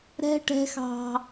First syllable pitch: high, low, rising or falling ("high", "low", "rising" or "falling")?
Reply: high